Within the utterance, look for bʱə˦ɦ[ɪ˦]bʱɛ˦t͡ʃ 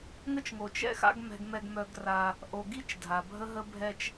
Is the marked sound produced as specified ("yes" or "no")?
no